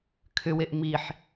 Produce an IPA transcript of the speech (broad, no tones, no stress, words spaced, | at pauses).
kʰʏweʔ miħ